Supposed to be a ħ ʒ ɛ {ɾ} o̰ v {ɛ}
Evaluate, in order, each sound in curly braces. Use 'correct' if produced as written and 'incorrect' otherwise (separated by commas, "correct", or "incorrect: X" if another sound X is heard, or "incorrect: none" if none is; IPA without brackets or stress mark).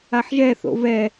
incorrect: θ, correct